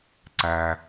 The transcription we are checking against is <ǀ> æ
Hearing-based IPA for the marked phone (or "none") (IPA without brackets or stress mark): ǀ